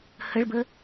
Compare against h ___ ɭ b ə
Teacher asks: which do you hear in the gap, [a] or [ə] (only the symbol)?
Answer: ə